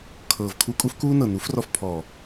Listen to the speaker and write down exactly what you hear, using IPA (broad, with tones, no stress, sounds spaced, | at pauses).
kʰ ɤː˨ v kʰ u˧ kʼ u˦ f k uː˦ n ɤ˨ n u˨˦ f r ɔ˧ f pʰ ɔː˨